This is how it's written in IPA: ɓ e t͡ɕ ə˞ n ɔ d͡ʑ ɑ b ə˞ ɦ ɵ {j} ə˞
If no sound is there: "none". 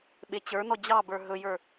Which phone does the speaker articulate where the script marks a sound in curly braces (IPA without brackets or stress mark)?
j